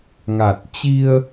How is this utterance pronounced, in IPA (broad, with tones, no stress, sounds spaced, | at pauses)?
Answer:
ŋ a˨˩ t̚ t͡ɕ i˧ ə̯